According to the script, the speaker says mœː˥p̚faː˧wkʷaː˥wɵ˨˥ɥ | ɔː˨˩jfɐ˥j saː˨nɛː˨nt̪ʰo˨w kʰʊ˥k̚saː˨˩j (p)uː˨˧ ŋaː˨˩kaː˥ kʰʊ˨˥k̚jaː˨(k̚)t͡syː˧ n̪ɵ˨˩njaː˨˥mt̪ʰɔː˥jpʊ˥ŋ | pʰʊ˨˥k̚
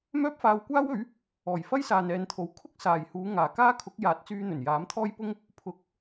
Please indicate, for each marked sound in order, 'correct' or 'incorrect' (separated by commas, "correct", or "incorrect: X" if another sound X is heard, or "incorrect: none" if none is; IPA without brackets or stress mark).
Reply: incorrect: h, incorrect: t̚